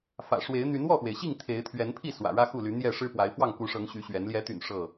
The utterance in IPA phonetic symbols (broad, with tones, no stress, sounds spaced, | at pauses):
f ä̰˨˩ ʂ w e˨˦ ɪ̯ n̪ y˨˦ n w ɔ˥˨ x w e˩ ɪ̯ ɕ i˥˨ ŋ t̪ʰ e˨˦ ɪ̯ t̪ʰ ɥ ɛ˨˦ n pʰ i˥˨ s w ä̰˨˩ ɻ ä˦ x u˥˨ l y˨˦ n̪ j ɛ˥˨ ʂ ɻ̩˦ p w a˨˦ ɪ̯ f w ɑ˥˨ ŋ k u˨˦ ʂ ɤ˨˦ ŋ ɕ y˨˦ ɕ ɥ ɛ˨˦ n l j ɛ˨˦ t̪ y̰˨˩ n ʂ ɤ˥˨